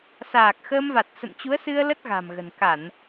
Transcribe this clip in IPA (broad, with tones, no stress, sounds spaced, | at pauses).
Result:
s aː˨˩ k̚ x əː˧ m v a˨˩ t̚ s ə̰˧˨ n t͡ɕ u˨˦ ə̯ s ɨ˧ ə̯ l ə˦˥ t̚ ɣ a̤˨˩ m ɣ ə̤˨˩ n k a˧˩˨ n